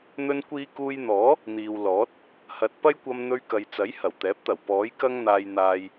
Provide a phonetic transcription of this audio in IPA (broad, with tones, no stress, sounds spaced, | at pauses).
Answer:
n̪ ɵ˧ n kʷ iː˧ k uː˧ j n̪ ɔː˨˥ | n̪ iː˨ w l ɔː˨˥ t̚ | h ɐ˨ t̚ p ɐ˥ j kʷ ɐ˧ m n̪ ɵ˧ ɥ k ɐ˨ j t͡s ɐ˨˥ j h ɐ˨˩ w t̪ ɛː˨˥ p̚ t̪ ɐ˨˩ w p ɔː˨˥ j k ɐ˥ ŋ n̪ aː˧ j n̪ aː˧ j